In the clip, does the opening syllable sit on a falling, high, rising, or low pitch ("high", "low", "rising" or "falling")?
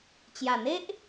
low